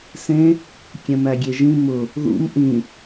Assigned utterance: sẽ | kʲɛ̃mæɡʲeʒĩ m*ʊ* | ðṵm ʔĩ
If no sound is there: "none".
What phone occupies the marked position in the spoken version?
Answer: ʊ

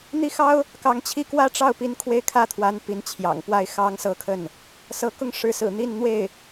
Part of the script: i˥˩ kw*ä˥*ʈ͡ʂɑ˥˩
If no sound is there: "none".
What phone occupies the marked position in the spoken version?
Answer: ä˥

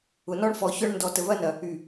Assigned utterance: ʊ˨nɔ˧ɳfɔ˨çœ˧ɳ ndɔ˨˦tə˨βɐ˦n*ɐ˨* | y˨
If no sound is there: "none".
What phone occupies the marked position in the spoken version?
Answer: ɐ˨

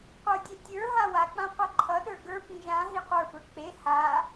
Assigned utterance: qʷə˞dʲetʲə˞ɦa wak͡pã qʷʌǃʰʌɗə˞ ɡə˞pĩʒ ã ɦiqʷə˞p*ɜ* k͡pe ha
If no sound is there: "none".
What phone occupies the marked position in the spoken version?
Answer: ə˞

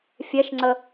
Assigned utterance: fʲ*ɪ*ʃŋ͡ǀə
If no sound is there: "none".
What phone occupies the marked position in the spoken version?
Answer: ɛ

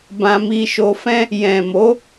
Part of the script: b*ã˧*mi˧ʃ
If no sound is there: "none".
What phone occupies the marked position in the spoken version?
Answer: ã˧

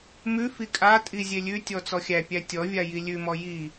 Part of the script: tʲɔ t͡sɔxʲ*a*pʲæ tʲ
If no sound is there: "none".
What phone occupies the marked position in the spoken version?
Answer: æ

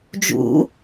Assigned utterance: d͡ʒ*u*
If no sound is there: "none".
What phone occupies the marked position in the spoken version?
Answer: ṵ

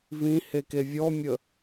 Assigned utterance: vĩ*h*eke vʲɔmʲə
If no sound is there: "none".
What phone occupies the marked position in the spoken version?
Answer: h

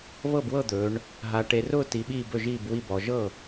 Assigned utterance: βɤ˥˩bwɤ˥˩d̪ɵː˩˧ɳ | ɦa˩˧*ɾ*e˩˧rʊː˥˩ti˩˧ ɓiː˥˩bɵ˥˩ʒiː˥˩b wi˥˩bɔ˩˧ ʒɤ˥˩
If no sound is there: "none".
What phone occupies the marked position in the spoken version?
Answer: ʈ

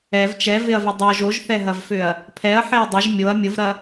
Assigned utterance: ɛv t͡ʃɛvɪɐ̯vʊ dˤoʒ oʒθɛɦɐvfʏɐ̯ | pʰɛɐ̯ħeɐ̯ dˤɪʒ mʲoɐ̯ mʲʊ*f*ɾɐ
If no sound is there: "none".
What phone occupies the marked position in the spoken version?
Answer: v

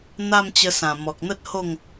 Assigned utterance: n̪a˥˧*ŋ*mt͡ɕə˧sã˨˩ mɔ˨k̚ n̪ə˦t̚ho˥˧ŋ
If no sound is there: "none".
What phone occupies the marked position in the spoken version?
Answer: none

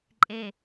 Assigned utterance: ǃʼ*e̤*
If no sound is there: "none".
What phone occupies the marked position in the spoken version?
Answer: e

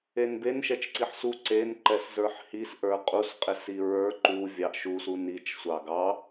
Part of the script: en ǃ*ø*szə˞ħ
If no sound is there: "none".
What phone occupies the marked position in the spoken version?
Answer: ɛ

